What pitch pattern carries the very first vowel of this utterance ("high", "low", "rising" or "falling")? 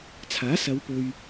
rising